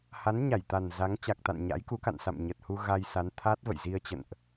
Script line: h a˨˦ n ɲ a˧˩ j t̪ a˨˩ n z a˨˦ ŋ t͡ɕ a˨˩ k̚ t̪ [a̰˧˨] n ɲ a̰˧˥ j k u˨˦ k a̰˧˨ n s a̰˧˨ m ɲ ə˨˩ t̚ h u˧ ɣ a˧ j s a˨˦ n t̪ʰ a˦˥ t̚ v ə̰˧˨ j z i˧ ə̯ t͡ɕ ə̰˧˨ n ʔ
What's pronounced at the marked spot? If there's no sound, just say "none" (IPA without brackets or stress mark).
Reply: a̰˧˨